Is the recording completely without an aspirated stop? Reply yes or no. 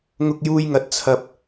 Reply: no